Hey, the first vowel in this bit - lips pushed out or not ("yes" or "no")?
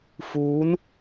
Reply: yes